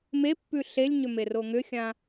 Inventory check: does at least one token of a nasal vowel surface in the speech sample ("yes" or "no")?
yes